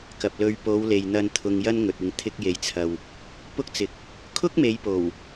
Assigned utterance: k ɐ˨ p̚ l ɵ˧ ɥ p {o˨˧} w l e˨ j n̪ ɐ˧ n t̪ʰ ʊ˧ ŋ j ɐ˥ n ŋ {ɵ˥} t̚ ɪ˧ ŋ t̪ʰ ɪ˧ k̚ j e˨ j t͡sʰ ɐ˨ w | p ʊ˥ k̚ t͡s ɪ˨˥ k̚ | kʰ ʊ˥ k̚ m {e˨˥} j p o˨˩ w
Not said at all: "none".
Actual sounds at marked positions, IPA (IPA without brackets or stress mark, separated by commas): o˨˧, ɵ˨, e˨˧